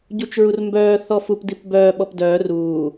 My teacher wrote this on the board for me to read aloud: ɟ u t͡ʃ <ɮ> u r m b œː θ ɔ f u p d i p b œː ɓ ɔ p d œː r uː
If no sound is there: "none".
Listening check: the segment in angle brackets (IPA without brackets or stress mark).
ɹ